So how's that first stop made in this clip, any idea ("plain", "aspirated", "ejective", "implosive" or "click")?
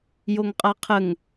ejective